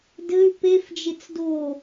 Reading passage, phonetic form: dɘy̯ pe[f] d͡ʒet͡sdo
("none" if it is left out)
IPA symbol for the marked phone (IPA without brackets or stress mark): f